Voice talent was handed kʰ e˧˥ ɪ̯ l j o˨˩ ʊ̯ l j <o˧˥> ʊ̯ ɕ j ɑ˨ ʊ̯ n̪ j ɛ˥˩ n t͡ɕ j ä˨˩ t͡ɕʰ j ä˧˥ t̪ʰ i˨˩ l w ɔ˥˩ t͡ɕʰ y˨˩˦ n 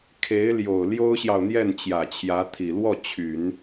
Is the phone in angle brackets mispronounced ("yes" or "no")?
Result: yes